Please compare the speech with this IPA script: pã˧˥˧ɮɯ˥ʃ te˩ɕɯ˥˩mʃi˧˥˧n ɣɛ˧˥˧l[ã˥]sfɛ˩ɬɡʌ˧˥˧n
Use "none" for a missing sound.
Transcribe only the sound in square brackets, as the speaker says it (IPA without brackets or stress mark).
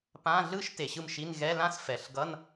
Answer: ã˥